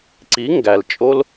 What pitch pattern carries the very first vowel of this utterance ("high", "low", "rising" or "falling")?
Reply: rising